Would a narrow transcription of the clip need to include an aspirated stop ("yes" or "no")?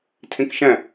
yes